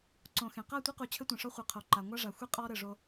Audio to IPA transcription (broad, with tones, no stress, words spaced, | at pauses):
ǀõ˨xẽ˨ qa˦˨tʷi˦qu˨ t͡ɕʰɘ˦tʷẽ˨ʂɔ˦ χʷe˨ qʰo˨ǃa˨ ŋʷa˦ʐa˨xʷi˦ qʼɔ˦ ɾɘ˦˨ʐo˦